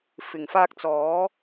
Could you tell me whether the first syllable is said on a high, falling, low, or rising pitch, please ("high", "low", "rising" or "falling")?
low